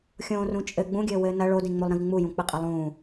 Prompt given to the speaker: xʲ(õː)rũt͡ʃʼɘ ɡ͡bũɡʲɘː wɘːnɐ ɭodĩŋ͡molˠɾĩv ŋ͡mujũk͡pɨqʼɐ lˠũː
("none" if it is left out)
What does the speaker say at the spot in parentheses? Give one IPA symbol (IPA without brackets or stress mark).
õː